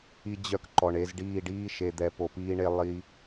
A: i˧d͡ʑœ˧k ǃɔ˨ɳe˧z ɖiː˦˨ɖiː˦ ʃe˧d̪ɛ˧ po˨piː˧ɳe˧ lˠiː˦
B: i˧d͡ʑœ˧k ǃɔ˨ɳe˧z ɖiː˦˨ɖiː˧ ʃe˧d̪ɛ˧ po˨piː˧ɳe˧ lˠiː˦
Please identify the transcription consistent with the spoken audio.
A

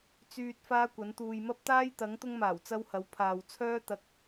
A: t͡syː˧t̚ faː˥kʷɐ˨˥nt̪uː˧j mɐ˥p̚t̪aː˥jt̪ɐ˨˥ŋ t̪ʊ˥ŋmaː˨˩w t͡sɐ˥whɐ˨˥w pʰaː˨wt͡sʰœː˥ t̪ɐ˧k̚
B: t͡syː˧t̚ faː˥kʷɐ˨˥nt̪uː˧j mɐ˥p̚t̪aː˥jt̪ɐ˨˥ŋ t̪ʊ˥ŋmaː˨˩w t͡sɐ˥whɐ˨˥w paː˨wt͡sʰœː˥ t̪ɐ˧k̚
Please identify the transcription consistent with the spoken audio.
A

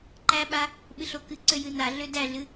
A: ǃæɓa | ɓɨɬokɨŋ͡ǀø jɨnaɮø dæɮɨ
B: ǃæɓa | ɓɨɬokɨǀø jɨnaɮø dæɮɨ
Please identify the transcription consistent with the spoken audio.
B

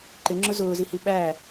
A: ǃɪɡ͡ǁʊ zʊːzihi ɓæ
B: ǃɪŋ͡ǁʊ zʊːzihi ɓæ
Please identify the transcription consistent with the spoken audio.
B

